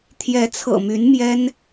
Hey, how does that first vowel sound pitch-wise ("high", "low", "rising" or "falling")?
rising